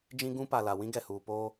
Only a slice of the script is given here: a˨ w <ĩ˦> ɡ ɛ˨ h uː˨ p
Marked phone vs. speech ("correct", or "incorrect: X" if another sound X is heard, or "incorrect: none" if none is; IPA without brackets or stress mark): correct